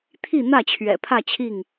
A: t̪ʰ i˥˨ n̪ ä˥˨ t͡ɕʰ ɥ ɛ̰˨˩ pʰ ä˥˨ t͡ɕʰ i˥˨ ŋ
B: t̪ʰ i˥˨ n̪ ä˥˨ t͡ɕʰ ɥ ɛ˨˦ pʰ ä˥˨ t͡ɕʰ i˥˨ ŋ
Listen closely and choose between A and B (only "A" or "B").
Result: A